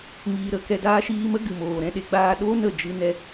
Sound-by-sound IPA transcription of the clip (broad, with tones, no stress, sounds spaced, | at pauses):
ŋ iː˧ ɾ ə˦ k ɛ˧ d aː˦ ʃ iː˧ m ə˦ ɡ ɨ˨ m oː˨ ɾ ɛ̃˧ ɗ e˧ ɡ͡b aː˧ ɗ oː˦ n ə˦˨ d͡ʒ ɨ˧ n ɛ˧